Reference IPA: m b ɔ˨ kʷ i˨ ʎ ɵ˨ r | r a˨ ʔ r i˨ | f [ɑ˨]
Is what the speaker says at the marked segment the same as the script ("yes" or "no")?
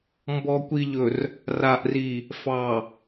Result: yes